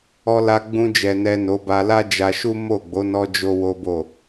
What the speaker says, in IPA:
ɔ˧ l a˧ ɡ͡b ũ˧ d͡ʒ ɛ˨ n ɛ˨ n o˨˦ b a˧ l a˦ d͡ʒ a˧ ʃ u˦ m o˦˨ ɡ͡b o˨˦ n ɔ˧ d͡ʒ o˦ w o˦ b o˦˨

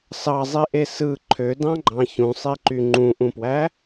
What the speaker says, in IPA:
s ɑ zˤ i ʔ e s ɯ ǃʰ ø d ɑ̃ ɡ͡ǃ ɑ̃ ç ũ sˤ i ǃ y ŋ͡ǃ ũ ʔ ũ p w æ

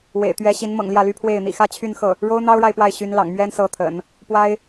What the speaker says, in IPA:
w ḛ˨˩ ɪ̯ t̪ ɥ ɛ˧˥ ɕ i˧˥ n m ɤ̰˨˩ ŋ l j ä˥˩ l y˥ pʰ w e˥˩ ɪ̯ n̪ ḭ˨˩ x ä˥˧ t͡ɕʰ y˥˧ n x ɤ˥˩ | ɻ o˥ ʊ̯ n̪ ɑ˥ ʊ̯ ɻ a˨ ɪ̯ p w a˥˩ ɪ̯ ɕ y˧˥ n l ɑ̰˨˩ ŋ m ɥ ɛ˥ n s ɤ˧˥ t̪ʰ ə̰˨˩˦ n | p w a˥ ɪ̯

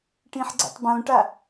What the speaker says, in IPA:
ʈ ĩ ħ ɡ͡ǀ ə̰ tˤ b õ ʈ a

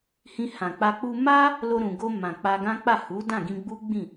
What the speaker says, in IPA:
h ĩ˧ h ã˨ k͡p a˧ k͡p u˧ m a˦ | l o˧ ɾ ũ˨ ɡ o˧ m ã˨ k͡p a˧ ɡ ã˦ k͡p a˦˨ h u˨˦ d ã˦˨ ɡ ĩ˧ ɡ͡b u˦ ɡ͡b ĩ˦˨

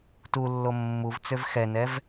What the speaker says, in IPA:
t u lː o mː u v t͡s ø v x ɛ n ɛ v

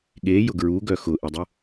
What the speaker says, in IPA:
ɠ e j ʊ ɡ ɹ u ɡ œ x ʊ ʔ e dˤ ʊ

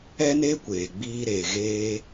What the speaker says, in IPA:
ɛ˦ n eː˦ kʷ eː˨ ɡ͡b iː˧ ɾ eː˨ ɣ eː˧

